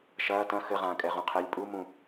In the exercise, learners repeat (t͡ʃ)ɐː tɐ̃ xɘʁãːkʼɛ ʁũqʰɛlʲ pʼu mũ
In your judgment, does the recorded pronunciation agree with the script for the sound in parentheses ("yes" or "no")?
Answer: no